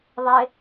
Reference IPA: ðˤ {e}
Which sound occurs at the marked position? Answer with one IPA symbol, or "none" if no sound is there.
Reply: e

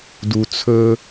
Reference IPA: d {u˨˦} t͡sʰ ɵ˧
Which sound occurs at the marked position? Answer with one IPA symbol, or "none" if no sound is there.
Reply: u˨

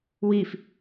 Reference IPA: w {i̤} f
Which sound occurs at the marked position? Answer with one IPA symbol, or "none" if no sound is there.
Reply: i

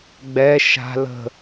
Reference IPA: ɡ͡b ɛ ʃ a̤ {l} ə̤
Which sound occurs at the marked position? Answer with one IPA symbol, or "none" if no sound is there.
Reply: l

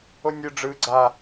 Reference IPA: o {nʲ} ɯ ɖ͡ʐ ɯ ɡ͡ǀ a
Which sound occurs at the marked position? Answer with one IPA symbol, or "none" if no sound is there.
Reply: nʲ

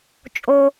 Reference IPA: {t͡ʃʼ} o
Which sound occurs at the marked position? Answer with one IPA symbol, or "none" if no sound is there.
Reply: t͡ʃʼ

